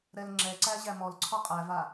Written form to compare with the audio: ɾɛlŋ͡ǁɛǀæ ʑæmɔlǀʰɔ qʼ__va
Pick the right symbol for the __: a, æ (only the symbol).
æ